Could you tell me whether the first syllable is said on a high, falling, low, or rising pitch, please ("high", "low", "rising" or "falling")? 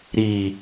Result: low